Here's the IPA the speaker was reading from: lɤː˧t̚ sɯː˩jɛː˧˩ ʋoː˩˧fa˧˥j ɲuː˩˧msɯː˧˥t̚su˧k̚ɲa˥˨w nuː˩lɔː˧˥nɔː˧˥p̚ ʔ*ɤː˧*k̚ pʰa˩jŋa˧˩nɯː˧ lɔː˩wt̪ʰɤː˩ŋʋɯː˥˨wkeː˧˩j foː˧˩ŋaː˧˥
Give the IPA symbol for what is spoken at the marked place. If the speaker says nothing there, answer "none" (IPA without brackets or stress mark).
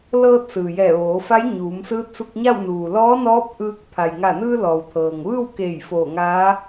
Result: ɯː˧